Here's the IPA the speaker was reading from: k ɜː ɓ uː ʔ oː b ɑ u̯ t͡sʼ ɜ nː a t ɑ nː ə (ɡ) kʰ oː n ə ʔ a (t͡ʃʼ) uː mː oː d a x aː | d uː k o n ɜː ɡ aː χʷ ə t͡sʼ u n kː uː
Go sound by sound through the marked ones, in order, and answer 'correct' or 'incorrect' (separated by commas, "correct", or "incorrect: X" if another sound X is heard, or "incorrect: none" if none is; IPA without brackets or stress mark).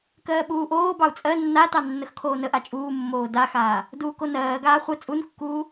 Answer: incorrect: x, correct